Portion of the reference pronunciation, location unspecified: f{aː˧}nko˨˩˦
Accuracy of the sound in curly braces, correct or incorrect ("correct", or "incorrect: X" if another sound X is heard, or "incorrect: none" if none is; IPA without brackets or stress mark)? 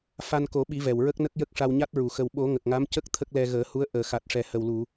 incorrect: a˧